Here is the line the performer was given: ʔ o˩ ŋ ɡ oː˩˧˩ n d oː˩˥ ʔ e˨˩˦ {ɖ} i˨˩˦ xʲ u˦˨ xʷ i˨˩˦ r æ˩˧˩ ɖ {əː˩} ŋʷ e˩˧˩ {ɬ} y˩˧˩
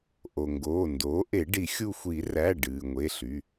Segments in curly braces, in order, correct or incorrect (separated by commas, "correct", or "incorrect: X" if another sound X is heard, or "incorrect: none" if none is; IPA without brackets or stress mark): correct, incorrect: ɨː˩, correct